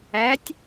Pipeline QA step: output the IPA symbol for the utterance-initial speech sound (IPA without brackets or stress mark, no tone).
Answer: æ